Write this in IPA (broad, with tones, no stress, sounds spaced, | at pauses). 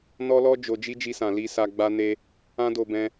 n ɔ˦ l ɔ˦ d͡ʒ o˧ d͡ʒ i˦ d͡ʒ i˧ s ã˨ l i˧ s a˧ ɡ͡b a˧ n e˧ | ã˦ d o˧ b ɛ̃˧